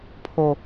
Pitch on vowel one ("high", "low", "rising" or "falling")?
low